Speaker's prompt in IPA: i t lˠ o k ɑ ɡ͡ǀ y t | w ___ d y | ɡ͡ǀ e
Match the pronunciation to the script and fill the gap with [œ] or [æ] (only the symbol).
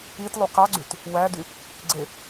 æ